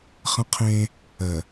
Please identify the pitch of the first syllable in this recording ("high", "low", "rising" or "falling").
high